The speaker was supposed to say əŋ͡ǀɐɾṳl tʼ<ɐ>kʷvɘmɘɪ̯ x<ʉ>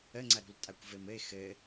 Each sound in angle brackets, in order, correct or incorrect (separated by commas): incorrect, incorrect